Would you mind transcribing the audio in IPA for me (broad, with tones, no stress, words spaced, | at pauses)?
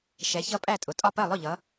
ʃɛ˨˦çʌ˦˥pʼæ˥˨tʼʊ˨˦ tʼɒ˥˨pɜ˥˨ lˠʊ˥˨ʎʌ˨˦